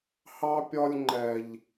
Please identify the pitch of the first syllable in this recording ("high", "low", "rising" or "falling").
high